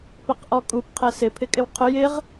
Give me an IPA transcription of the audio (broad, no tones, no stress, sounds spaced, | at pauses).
p ɛ q ʔ ɔ kʼ u p qʰ ɛ s ɪ pʰ ɪ kʼ ɪ w qʰ ʊ j ɪ ʁ